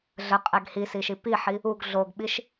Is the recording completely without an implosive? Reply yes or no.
no